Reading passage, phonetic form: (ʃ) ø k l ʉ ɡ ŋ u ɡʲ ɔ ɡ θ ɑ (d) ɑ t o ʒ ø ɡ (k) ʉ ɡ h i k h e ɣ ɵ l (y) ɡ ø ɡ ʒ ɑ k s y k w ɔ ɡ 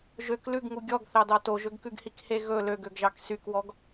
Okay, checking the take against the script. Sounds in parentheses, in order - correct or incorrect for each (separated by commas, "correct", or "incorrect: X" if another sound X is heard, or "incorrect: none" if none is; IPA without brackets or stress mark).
incorrect: ʒ, correct, correct, incorrect: ø